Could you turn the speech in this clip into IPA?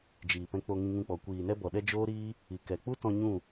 d͡ʒ iː˨ p ɛ̃˧ k͡p o˧ ŋ ĩ˧ ŋ ũ˧ k͡p ɔ˨ kʷ iː˨ n ɛ˦ b ɔ˨ ɗ ɛ˦ d͡ʒ oː˦ ɾ iː˦ | i˨ k ɛ˨ k͡p u˦ t ɔ̃˧ ɲ ũ˦˨

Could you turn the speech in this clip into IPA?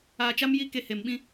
aː˧ t͡ʃ a˦ m j i˦ k e˧ h e˨ m ɓ ĩ˦

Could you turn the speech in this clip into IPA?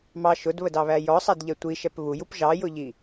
m ɑ ʃ ʊ d β ə d ɑ β æ j ɔ sˤ æ d ʎ ɛ tʷ i ʃ ɛ p β u j u p ʒ ɑ j ʊ ʎ i

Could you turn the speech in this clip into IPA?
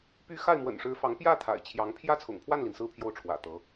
p y˧˥ x a˥˩ ɪ̯ m w ə̰˨˩ n ʂ ɻ̩˧˥ f ɑ˧˥ ŋ p j ä˥˩ t̪ʰ a̰˨˩ ɪ̯ t͡ɕʰ j ɑ˧˥ ŋ pʰ j ä˥˩ t͡sʰ ʊ̰˨˩ ŋ pʰ w a˥˩ n l i˩ n s ɹ̩˥˧ pʰ j o˥˩ ʊ̯ ʈ͡ʂʰ w ä̰˨˩ t̪ ɤ˧˥

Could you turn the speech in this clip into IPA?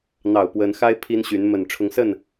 n̪ ɑ˨˩ ʊ̯ p w ə˧˥ n x a˥ ɪ̯ pʰ i˥ n ɕ y˧˥ n m ə˨˩ n ʈ͡ʂʰ ʊ˧˥ ŋ s ə˥˩ n

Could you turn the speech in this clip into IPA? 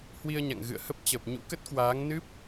h w i˧ ə̯ ɲ a̰˧˨ ŋ ɣ ɨ̰˧˨ ə̯ h ə˦˥ p̚ t͡ɕ ə˨˩ p̚ ɲ ṵ˧˥ k ə˦˥ t̚ k w aː˨˦ ŋ n ɨ˦˥ p̚

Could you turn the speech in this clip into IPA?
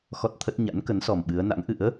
x ɔ˦˥ t̚ t̪ʰ ə˦˥ t̚ ɲ a̰˧˥ n k ə˨˦ n s ɔ˨˩ m ɓ ɨ˨˦ ə̯ n a̰˧˥ ŋ ʔ ɨ̰˧˥ ə̯

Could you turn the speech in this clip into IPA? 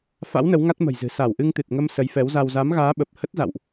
f a̰˧˥ w n ə˨˦ w ŋ a˦˥ t̚ m ə̤˨˩ j z ɨ̤˨˩ s a˧˩ w ʔ ɨ˧ ŋ t̪ ɨ˨˩ t̚ ŋ ə˧ m s ə˨˦ j f ɛ˨˦ w z a˧ w z a˨˦ m ɣ aː˨˦ ɓ ə˨˩ p̚ h ə˦˥ t̚ z a̰˧˨ w ʔ

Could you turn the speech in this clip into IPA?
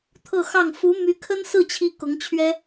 t̪ʰ ɤ˥˧ x ɑ˥˩ ŋ f u˧˥ m y˧˥ kʰ ə˥ n s ɹ̩˥˩ t͡ɕʰ i˥ k ʊ˧˥ ŋ t͡ɕʰ ɥ ɛ˥

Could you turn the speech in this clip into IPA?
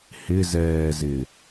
h ɪ z ɛː z ɪ

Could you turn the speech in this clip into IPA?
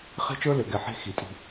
χ e̤˦ t͡ʃ ə˞˦ l ʏ˨ ɡ ɛ˨ ħ e̤˦ x i˨ tʼ i̤˦

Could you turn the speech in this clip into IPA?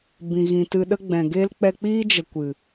b ĩ˨ ɣ ĩ˨ t ɨ˧ ɗ ə˦ ɡ͡b ɛ̃˨ ɡ e˦ l k͡p ɛ˧ k͡p iː˦ d͡ʒ ə˨ kʷ ɨ˨

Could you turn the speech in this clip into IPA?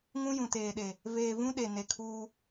ŋ ũ˦ j ũ˨ t eː˨ ɗ e˨ | v eː˨ v ũ˦ ɗ e˨ n e˨ kʰ uː˦

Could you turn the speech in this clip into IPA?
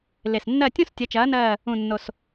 l e˨˩ s nː ɜ˦˨ tʲ õ˦ s tʲ ɐ˨˥ t͡ʃ ɐː˨˥ n ɜː˦˨ | ũ˨˩ nː o˨˩ s

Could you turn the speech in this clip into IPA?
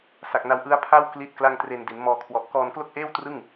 s a˨˩ k̚ n a˧ w ʔ ɯ˦˥ a̯ pʰ a˥˩ w k l i˥˩ t̚ k l a˥˩ ŋ t r e˧ n d i˩˦ n m ɔː˧ kʰ w ɔ˨˩ ʔ k ɔː˧ n k l o˥˩ k̚ ʔ eː˥˩ w t r ɯ˥˩ ŋ

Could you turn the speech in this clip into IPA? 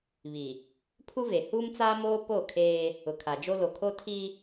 β i˨ | pʰ u˦ v e˨ h uː˦ m t͡s aː˦ m oː˦ p o˦˨ kʰ eː˦ | ʊ˨ kʰ a˨ d͡ʒ o˦ l o˨ kʰ o˦ tʰ i˦

